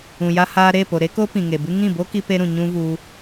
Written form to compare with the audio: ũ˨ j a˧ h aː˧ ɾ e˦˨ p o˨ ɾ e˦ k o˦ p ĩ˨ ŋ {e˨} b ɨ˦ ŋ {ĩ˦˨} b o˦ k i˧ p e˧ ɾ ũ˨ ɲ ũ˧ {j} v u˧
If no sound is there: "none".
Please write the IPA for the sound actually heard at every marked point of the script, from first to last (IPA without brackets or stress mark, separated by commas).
e˨, ĩ˦˨, none